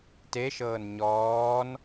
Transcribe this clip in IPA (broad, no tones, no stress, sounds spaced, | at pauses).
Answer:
t e ʃ ɤː n ɲ ɔː n